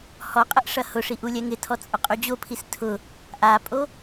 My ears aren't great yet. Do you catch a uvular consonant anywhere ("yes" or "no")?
yes